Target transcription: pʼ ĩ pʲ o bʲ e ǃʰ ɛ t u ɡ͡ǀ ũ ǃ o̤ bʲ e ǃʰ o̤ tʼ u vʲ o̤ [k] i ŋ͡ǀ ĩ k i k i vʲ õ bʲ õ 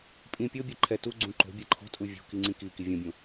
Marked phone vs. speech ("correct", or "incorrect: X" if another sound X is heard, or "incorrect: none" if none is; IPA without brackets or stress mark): correct